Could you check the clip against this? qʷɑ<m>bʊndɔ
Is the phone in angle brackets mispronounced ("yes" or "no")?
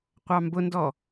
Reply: no